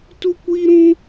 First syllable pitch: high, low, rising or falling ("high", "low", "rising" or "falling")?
high